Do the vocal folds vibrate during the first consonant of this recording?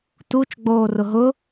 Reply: no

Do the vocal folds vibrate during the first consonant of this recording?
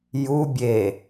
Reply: yes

